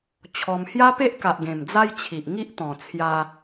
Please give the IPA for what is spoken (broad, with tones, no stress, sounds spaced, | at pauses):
t͡ɕʰ ɔ˧ m h j a˦ p e˦ ʔ k a˨ ʔ ɡ ẽ˨˩ m d͡z a˦ j t͡ɕʰ i˨ ʔ ŋ i˦ ʔ t̪ ɔ̃˨˩ t͡sʰ j a˧